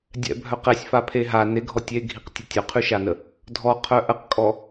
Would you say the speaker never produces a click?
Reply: yes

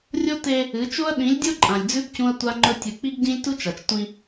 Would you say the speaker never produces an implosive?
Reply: no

